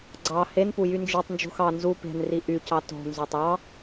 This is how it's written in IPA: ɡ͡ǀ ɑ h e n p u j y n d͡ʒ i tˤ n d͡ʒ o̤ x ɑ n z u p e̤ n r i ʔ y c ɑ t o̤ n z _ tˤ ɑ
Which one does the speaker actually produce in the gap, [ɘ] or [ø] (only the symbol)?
ø